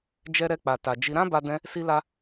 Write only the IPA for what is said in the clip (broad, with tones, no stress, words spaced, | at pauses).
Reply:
d͡ʒɛ˧ɾɛ˧k͡pa˨ ta˨d͡ʒi˧ ɾã˦ba˧dɛ̃˧ | si˧la˧